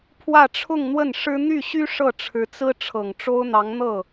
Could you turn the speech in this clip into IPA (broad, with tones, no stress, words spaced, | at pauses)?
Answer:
pʰwä˥˧ʈ͡ʂʰʊ˥˧ŋn̪wə˥˩nʂɻ̩˥ n̪y˥˩ɕy˥ ʂɤ˥˩ʈ͡ʂʰɻ̩˧˥t͡sɹ̩˥ ʈ͡ʂʰɤ˨˩ŋʈ͡ʂo˥ʊ̯n̪ɑ˧˥ŋn̪ɤ˥˩